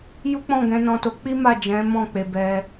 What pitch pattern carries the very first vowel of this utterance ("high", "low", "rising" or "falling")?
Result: high